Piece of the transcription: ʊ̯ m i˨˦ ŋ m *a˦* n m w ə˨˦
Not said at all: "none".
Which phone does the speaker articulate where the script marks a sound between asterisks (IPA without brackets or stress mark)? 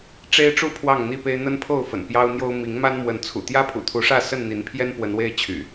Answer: a˦